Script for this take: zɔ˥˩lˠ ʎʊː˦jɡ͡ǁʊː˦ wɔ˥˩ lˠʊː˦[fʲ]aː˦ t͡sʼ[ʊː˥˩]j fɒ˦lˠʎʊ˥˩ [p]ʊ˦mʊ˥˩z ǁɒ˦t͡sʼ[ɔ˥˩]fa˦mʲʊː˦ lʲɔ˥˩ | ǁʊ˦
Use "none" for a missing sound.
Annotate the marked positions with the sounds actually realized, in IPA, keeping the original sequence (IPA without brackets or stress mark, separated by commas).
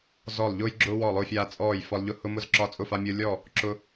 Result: fʲ, ɔː˥˩, h, ʊ˥˩